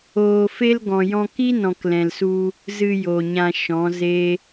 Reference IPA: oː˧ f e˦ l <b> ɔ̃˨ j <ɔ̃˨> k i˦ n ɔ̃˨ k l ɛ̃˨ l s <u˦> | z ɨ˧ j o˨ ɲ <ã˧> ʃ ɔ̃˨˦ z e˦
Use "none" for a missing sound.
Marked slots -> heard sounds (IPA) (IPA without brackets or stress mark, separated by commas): ɡ, ɔ̃˧, u˧, ã˧